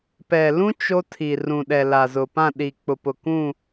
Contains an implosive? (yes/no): yes